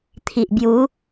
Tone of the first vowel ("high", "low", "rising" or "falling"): low